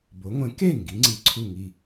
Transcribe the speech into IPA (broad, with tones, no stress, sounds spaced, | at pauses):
b o˩˥ ŋʷ ẽ˩˥ k e˥˩ ŋ ɡ i˩˥ ŋ͡ǀ i˩˧˩ ǀʰ u˥˩ ŋ i˥˩